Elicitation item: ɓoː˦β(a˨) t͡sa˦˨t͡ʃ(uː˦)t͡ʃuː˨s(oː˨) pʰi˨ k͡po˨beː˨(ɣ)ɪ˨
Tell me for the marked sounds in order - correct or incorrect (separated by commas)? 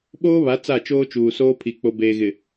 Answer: incorrect, incorrect, incorrect, correct